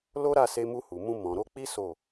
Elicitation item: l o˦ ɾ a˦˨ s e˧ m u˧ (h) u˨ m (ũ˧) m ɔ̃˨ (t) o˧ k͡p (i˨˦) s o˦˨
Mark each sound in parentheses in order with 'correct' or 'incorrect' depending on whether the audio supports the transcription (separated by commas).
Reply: correct, correct, incorrect, incorrect